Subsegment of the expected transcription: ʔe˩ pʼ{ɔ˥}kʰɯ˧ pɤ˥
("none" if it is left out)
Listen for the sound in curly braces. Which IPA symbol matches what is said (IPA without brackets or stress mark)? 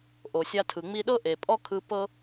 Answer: ɔ˥